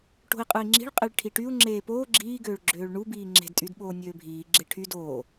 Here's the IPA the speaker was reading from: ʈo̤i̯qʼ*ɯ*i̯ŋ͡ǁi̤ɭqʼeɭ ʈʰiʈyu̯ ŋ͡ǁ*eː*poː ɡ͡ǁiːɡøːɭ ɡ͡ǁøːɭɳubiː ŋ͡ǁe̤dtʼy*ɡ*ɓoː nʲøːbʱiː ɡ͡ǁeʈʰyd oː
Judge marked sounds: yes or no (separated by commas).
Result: yes, yes, no